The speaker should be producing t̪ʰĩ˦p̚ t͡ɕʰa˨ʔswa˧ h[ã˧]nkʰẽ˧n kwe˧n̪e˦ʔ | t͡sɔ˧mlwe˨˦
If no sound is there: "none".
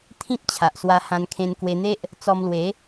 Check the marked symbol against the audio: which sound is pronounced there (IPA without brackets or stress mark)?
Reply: ã˧